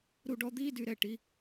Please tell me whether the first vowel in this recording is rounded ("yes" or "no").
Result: yes